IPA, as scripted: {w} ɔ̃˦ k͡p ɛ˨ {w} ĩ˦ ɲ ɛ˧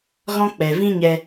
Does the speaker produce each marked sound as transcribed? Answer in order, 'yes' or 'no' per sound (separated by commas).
no, no